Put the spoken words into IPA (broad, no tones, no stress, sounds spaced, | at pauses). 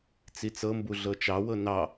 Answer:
t͡s i t͡s ɤ m b u ɮ ɤ t͡ʃ ɑ w ɤ n ɑ